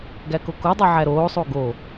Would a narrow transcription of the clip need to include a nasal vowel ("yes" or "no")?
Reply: no